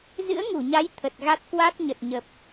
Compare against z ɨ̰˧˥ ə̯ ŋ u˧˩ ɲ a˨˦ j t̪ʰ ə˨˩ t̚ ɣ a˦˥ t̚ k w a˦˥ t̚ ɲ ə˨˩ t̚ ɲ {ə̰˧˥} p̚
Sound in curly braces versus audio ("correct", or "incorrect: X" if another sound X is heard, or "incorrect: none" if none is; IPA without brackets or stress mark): incorrect: ə˨˩